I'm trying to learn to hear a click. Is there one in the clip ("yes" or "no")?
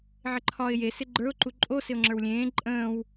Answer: yes